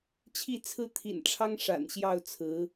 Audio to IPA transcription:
t͡ɕʰ i˥˧ t͡sʰ ɹ̩˥˩ t̪ʰ ḭ˨˩ n ʈ͡ʂʰ ɑ˥ ŋ ʂ a̰˨˩ n ɕ j ɑ˥˩ ʊ̯ t͡sʰ ɹ̩˧˥

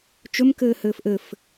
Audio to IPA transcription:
t͡ʃ ɵ m k ɘː h ɘː f ʔ ɘ f

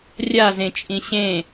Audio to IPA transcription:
rʲ a z ẽ t͡ʃʼ ĩ ɕ ẽ

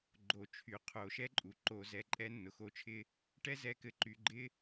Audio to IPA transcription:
ɡ͡ǃ o˩˧ t͡ʃʰ y˩ qʰ o˩˧ ʃ ɛ˥ ǃʼ u˩ ǃ o˧ z ɛ˧ ǃʼ ɛ˥ nː ʊ˩ x o˧˥ t͡ʃʰ ɪ˥ | ʈ ɛ˥ z ɛ˧ k ɘ˧ ǃ y˩˧ ɡ͡ǃ ɪ˥

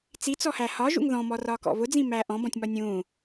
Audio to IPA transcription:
t͡s i t͡s ɔ h æ h ɒ ʒ ṵ ŋ ð ɔ̃ m ɔ r ɒː k ɔ̰ β ʊ d͡z ĩ m æː ʔ ɔ̃ b ɔ̃ tʲ m ɒ nʲ ũː

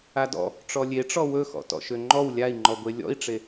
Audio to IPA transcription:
a d ɔ̰ | ʈ͡ʂ ɔ lʲ e ʈ͡ʂ ɔ w ɵ x ɔ̰ t ɔ̰ ʃ ø ŋ͡ǃ ɔ w lʲ a i̯ ŋ͡ǃ ɔ ɡʷ e lʲ ɔ̰ i̯ ʈ͡ʂ e

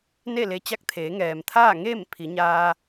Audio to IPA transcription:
n e˥˨ l e˧ t͡ɕ a˧˥ k̚ t̪ʰ eː˩˧ ŋ ɛː˩ m t̪ʰ aː˥˨ ŋ eː˥˨ m pʰ i˩˧ ɲ aː˧

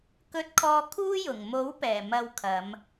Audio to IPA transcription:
k ɵ˧ t̚ kʰ ɔː˧ kʰ uː˥ j ʊ˨˩ ŋ m o˨˥ w p ɛː˨˩ m ɐ˧ w kʰ ɐ˨˧ m

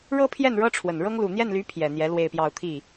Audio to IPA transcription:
ɻ ɤ˥ pʰ j ɛ˥˩ n ɻ ɤ˥ ʈ͡ʂʰ w ə˨˩ n ɻ ɤ˥ ŋ l u˨˩ n̪ j ɛ˥˩ n l y˧˥ pʰ j ɛ˨˩ n̪ j ɛ˧˥ l w e˥˧ ɪ̯ p j ɑ˥˧ ʊ̯ t̪ʰ i˥˩

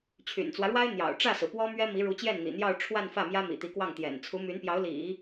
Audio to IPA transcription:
t͡ɕʰ y̰˨˩ n t͡s w ä˦ ɻ w a˥ ɪ̯ n̪ j ɑ̰˨˩ ʊ̯ ʈ͡ʂ ä˥˩ s ɹ̩˩ p w ɔ˥ m ɥ ɛ˥ m i˧˥ ɻ u˧˥ t͡ɕ j ɛ˥˩ n n̪ ḭ˨˩ n̪ j ɑ˥˧ ʊ̯ ʈ͡ʂʰ w a˥˧ n f ä˥˩ m j ä˥ m ḭ˨˩ t̪ i˧˥ k w ɑ˥˩ ŋ t̪ j ɛ̰˨˩ n t͡sʰ u˧˥ m y˧˥ n p j ɑ˧˥ ʊ̯ l ḭ˨˩˦

